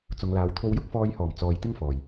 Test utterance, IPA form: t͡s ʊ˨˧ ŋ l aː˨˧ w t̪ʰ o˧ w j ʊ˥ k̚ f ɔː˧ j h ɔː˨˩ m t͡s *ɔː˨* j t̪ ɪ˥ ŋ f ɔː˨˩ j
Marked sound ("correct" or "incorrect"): correct